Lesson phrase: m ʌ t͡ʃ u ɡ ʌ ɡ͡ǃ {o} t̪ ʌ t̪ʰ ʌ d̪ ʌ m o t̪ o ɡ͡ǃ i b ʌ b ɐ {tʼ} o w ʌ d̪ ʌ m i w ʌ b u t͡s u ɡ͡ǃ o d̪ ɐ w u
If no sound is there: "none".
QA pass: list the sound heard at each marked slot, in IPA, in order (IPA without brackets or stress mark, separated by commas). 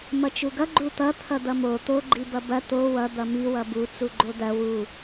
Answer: u, t̪